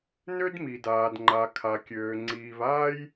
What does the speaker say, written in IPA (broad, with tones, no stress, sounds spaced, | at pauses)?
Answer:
n ø˥ d m i˩ d aː˩ d ŋ͡ǃ a˩ kʰ a˩ kʲ øː˩ ŋ͡ǀ iː˩ v aː˥ j